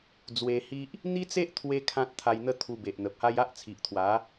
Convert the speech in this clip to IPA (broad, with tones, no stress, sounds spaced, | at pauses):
d͡z w e˧ h i˦ ʔ | n̪ i˦ t͡s e˦ ʔ t̪ʰ w e˧ kʰ ã˦ t̚ t̪ʰ a˧ j n̪ ə˦ t̪ʰ u˧ b e˨ ʔ n̪ ə˨ p̚ h a˦ j a˦ ʔ t͡sʰ i˨ ʔ t̪ʰ w a˨˦